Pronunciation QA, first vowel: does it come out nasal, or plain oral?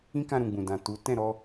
nasal